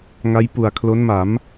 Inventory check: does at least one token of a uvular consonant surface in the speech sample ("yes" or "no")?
no